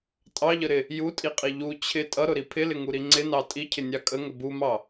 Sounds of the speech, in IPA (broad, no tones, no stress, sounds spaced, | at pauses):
tʼ ɑ ʎ ə ɾ ɪ | j u tʼ i qʼ i ʎ u t͡ɕʰ ɪ tʼ ʌ ɾ ʊ ɾ i pʰ ɪ l ɪ ŋ u ɾ i ŋ͡ǀ ɪ n ɑ tʼ i cʰ ɪ nʲ ɑ kʼ ə ŋ ə b u m ɑ